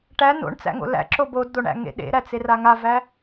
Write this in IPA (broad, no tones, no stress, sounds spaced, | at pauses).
ʈ æ n o̰ ɳ t͡s æ̰ ŋ o̰ l æ̰ ǁ o b o d d̪ o ɳ æ̰ ŋ ḛ ɗ ḛ ɾ æ t͡s e r a ŋ a v æ